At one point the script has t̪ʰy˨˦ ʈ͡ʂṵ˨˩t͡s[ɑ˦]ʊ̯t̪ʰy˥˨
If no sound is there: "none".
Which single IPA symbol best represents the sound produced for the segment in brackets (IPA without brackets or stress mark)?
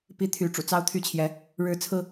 ɑ˦